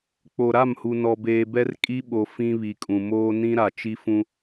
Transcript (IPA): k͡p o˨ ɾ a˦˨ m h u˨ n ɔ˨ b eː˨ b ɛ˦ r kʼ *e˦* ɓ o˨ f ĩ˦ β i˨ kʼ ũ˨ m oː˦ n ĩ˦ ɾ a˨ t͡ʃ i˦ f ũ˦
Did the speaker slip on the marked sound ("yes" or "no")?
yes